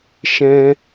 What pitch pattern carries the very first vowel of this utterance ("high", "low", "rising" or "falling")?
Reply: high